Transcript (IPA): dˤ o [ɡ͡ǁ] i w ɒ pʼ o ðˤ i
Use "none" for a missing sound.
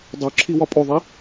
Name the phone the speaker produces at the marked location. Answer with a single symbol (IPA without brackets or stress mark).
ǁʰ